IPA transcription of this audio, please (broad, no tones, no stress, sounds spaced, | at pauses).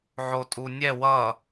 ʕ o tʼ u nʲ ɛ w ʌ